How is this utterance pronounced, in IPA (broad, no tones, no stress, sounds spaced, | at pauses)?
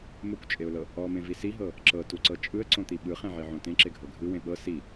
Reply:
m o kʷ t͡ʃʼ e ʊ̯ l ɤ | ɔ m ẽ v i s i ɦ ɤ | ǁ ɤ t u ǀ ɤ t͡ʃʼ ɯ ə̯ ǀ õ t̪ i ɓ ɯ χ ẽ ʕ i ʕ õ t ẽ ǁ e ɡʱ ɤ ɡʱ ɯ w ẽ ɓ ɤ s i